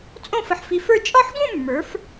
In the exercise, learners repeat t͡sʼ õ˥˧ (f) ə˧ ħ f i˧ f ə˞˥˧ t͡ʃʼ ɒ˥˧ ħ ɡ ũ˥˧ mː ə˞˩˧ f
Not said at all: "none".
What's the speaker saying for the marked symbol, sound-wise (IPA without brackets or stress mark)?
f